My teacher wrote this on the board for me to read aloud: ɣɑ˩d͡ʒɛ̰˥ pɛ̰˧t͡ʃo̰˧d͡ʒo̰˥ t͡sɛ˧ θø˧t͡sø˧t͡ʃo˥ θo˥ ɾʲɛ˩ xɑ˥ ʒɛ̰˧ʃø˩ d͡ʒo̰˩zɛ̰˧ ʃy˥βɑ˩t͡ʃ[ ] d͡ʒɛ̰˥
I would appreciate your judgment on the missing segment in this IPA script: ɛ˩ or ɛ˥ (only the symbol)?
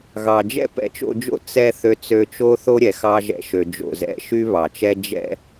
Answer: ɛ˥